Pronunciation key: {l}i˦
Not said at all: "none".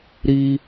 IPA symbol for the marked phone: ɾ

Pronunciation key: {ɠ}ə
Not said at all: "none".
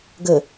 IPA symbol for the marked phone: ɡ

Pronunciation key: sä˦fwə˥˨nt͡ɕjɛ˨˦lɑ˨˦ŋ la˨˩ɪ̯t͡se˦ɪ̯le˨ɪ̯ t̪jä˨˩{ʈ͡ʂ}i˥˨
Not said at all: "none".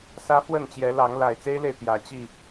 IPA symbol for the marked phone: t͡ɕ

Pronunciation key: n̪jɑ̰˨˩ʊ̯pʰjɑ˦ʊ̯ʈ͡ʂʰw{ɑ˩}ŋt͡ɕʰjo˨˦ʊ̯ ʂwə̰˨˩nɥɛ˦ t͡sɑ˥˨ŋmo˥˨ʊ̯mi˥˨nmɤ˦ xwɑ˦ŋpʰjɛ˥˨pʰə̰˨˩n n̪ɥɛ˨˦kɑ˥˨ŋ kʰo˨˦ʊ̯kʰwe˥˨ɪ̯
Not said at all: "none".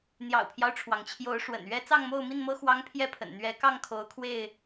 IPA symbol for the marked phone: ɑ˩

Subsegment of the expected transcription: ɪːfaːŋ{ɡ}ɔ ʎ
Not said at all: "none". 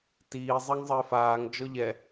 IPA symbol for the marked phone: d͡ʒ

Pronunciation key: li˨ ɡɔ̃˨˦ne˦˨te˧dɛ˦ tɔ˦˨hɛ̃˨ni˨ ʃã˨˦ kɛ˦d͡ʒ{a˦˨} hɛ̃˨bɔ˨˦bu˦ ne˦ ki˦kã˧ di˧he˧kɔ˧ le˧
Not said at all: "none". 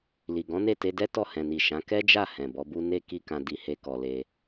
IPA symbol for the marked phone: a˦˨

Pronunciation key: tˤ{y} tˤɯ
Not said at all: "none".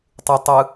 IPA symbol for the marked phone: u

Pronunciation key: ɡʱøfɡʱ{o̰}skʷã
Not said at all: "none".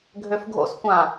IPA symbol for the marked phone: o̰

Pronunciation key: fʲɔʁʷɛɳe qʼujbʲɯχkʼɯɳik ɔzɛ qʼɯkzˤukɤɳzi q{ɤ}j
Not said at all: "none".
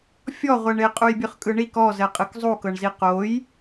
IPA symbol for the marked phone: o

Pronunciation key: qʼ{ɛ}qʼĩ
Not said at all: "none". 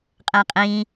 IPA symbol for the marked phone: ɛ̃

